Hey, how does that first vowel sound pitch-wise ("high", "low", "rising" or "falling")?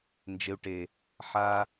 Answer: low